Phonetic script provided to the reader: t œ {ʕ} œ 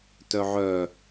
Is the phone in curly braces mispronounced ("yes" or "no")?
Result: no